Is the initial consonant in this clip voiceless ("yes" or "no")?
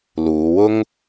no